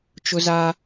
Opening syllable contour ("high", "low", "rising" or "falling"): high